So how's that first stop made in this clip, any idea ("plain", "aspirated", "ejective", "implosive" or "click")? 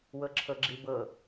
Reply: click